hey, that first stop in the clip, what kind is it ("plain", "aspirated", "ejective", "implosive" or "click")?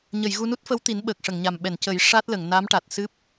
plain